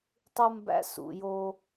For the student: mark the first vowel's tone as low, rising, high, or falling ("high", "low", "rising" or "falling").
high